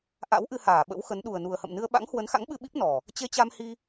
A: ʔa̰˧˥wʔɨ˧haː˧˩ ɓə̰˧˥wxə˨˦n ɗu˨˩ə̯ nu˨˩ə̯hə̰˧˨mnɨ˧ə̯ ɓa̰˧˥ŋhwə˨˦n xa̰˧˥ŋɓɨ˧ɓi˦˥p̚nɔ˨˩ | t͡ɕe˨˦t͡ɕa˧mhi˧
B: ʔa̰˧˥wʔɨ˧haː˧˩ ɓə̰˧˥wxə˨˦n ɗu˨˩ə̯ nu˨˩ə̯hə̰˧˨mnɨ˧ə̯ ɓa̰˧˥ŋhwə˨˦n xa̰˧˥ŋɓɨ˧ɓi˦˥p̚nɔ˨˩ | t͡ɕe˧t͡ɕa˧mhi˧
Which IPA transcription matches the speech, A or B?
B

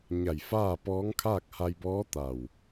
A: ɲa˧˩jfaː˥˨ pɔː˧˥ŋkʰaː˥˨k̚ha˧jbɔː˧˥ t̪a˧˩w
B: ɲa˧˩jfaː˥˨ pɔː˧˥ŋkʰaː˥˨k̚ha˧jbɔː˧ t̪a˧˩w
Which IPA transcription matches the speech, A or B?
A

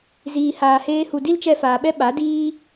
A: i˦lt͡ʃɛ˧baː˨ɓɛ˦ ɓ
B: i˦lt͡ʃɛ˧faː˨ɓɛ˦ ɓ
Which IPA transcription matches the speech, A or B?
B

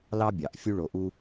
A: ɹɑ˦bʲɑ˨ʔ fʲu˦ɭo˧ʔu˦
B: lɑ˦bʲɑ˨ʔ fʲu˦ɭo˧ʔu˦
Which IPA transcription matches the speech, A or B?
B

